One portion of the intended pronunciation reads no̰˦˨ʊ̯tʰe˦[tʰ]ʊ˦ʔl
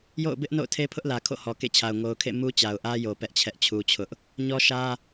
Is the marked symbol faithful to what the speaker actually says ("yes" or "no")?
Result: no